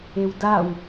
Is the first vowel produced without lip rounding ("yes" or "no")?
yes